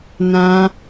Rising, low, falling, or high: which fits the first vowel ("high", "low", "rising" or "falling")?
high